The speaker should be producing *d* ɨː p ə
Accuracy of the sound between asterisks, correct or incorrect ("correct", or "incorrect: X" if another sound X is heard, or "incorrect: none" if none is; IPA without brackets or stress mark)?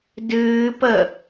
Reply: correct